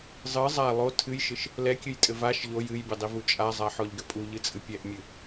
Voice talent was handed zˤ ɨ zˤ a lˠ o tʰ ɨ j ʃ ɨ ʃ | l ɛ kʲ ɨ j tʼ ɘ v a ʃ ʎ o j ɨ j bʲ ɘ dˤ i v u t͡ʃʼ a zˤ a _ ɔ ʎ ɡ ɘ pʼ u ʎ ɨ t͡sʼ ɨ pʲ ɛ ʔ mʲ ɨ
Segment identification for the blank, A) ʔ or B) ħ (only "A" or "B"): B